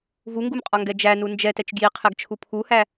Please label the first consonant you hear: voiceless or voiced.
voiced